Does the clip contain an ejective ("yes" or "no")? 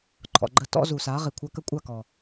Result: yes